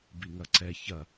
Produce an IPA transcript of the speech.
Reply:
b i ŋ ɐ ǀ ɛ ç ɐ

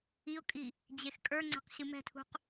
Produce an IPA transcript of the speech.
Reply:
i ʊ̯ kʼ i | d͡ʑ e x kʼ ə˞ ŋ͡ǀ ɛ̤ q ɕ ɨ m ɛ̤ tʰ ṳ q

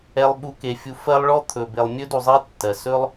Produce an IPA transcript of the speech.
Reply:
ɛ˨ lˠ ɓ u˨ k e˩ fʲ u˨ f ɜ˦ lˠ ɭ ɔ˥ t̪ʰ ɵ˩ b e˨ lˠ mʲ ɵ˥ d u˨ zˤ i˦ tː ɜ˩ s ɵ˥ lˠ

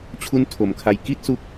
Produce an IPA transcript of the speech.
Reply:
t͡ɕʰ u˦˥ n tʰ o˩˦ m kʰ a˧ j k i˥˩ t̚ s u˦˥ k̚

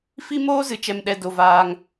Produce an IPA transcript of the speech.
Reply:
f i˦ m oː˦ z ɨ˨ t͡ʃ ɛ˧ m ɗ ɛ˧ d o˧ v aː˦ ŋ

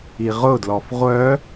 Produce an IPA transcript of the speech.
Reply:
i ʁ ʊ d l ɔ f ʁʷ œ

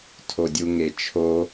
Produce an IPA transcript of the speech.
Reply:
tʰ o dʲ u ŋ e t͡ʃʰ o

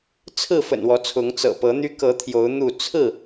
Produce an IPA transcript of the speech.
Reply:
t͡sʰ ɹ̩˥˨ f ə̰˨˩ n w ɔ˨˦ t͡sʰ ʊ˨˦ ŋ t͡s ɤ̰˨˩ p ɤ˨˦ n̪ y˦ k ɤ˨˦ t̪ʰ j o˨˦ ʊ̯ n̪ u˥˨ t͡sʰ ɹ̩˥˨

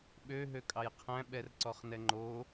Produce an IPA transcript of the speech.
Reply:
ɓ ø ɦ ø kʼ ɑ j qʰ æ̃ ɓ ɛ r ǀ ɔ χ n ɛ ŋ͡ǃ o

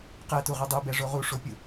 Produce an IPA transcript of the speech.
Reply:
q ɛ t u ʁ u dˤ u b ɛ ʐ o ʁ u ʂ o pʲ u

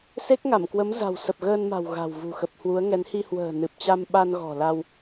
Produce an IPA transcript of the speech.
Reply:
s e˦˥ k̚ ŋ a˧˩ m k w ə˨˦ m z a̤˨˩ w s ə˨˩ p̚ ɣ əː˧ n m a̤˨˩ w ɣ a̤˨˩ w v ṳ˨˩ x ə˨˩ p̚ h w u˨˦ ə̯ ŋ ɛ˨˦ n h i˧ h w ə̤ː˨˩ n ɨ˨˩ p̚ t͡ɕ a˧ m ɓ a˧ n ɣ ɔ̤˨˩ l a˧ w

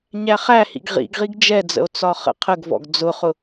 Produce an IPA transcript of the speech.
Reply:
ɲ æ χ æ h ḭ ɡ ʁ ḭ ɡ ʁ i ɡ d͡ʒ ɛ d͡z ə̰ o̯ t͡s ɒ χ ə̰ qʰ ə ɡ v ɔ̰ ɡ d͡z ʊ χ ʊ

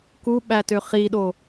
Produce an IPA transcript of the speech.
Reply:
k u ɓ æ t ø χ i ɗ o

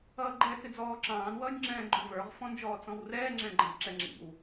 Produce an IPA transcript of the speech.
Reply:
ʌː ɡ͡ǃ ɛ x ɪ d͡z ɔː ǁ ɑ̃ː n w ʌː nʲ ŋ͡ǁ ɛ̃ː ɡ͡ǃ ʊ v ə˞ ʁ f ɔ̃ n d͡ʒ ɔː t͡s ɔ̃ w r ɛː ŋ͡ǁ ɛ̃ ɡ͡ǃ ɛ̃ b ǁ ɛ ŋ͡ǁ ḭ w

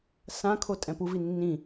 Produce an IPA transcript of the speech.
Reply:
s ã kʰ o tʼ ɛ̃ p u v i nː ĩ

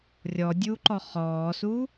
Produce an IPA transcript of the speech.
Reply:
rʲ ɔ dʲ uː ǃ ɔ χ ɔː s u

